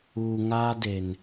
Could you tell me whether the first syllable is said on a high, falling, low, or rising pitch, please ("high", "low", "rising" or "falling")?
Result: low